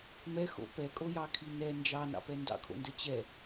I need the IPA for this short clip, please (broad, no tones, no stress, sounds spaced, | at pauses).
m ɛ x o̰ p ɛ kʼ o j ɑ kʰ i n ɛ n d͡ʒ ɑ n ɑ̰ p ɛ n d ɑ̰ kʰ o̰ n d ə t͡ɕ ɛ